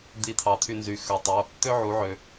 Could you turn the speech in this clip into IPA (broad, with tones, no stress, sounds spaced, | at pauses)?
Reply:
d̪ i˧˩ t̪ʰ ɑ˩ t̪ʰ y˧˩ n z y˩˧ x ø˩ tˤ o˩˧˩ | t̪ ø˦ ʕ u˩˧ ʕ ø˩